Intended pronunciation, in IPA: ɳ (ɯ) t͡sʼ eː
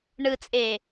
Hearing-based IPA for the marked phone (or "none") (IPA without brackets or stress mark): ɯ